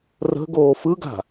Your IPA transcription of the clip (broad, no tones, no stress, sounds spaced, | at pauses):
r ə̤ ɡ oː f ɯ ɡ a̤